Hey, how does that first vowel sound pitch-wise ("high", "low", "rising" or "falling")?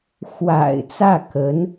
low